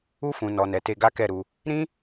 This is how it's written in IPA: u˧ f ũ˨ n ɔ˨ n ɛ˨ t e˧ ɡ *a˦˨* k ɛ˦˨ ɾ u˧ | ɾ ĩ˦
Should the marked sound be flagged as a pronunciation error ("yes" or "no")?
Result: yes